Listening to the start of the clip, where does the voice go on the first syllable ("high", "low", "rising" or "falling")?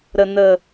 low